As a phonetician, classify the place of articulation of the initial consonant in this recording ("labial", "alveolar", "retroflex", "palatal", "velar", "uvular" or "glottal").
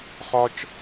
uvular